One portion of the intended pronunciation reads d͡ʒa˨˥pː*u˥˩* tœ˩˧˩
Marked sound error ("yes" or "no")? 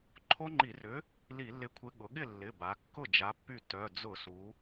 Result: yes